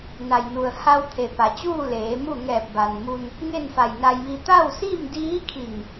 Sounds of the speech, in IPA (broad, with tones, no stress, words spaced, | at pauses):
na˩jnu˩ə̯ ha˧wt̪ʰe˩ pa˩t͡ɕuː˥˨ leː˩˧mu˥˨ ŋɛː˧˩p̚ba˩nmu˧n | ŋe˥˨nfa˧˩jna˧jʋi˧ t̪a˥˨wsi˥˨mdiː˧˥kʰi˧˩ŋ